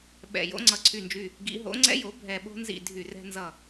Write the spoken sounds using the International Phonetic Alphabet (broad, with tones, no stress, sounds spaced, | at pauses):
ɓ ɛ̰˧˩ j o̰˨˥ ŋ͡ǀ ʌ˧˩ ǀʰ y˧˩ n d͡ʒ y˧˩ | ɡ ḭ˨˥ ɦ o̰˨˥ ŋ͡ǀ ɛ̰˦ j o˨˥ bʱ ɛ˧˩ ɓ o̤˦ n z ḭ˧˩ dʱ y˧˩ r ɛ̤˦ n z ʌ˧˩